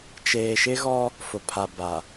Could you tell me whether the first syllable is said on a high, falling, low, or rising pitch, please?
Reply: low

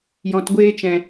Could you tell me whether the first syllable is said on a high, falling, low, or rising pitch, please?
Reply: low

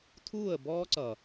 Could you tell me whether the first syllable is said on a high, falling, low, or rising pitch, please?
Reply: falling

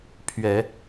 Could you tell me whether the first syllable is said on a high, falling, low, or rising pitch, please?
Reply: low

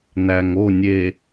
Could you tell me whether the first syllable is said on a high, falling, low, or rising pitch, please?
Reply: low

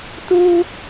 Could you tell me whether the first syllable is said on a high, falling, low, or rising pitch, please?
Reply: high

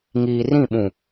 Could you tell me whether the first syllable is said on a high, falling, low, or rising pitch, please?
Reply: low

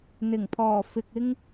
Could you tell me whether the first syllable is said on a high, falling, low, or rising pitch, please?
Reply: low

